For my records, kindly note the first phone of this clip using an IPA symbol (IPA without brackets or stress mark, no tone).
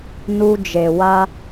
n